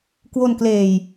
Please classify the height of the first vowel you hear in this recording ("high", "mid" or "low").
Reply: mid